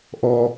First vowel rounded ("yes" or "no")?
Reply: yes